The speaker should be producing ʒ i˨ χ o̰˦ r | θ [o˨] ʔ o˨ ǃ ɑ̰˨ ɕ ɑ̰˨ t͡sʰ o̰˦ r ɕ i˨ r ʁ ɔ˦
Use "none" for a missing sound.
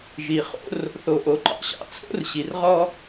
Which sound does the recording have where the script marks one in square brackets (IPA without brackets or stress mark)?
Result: o˨